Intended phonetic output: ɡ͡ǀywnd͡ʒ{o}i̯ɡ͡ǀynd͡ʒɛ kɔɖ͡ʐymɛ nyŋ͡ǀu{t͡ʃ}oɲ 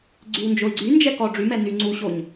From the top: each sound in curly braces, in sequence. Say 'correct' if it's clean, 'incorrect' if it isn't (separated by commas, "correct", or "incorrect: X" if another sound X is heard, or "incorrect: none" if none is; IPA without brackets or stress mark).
correct, incorrect: ɕ